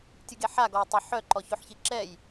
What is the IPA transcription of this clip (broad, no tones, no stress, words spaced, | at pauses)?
tʲuɡeħa ɡɔj tˤe ħœ ǃɔçoħçiǁɛj